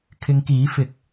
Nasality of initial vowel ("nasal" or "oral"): oral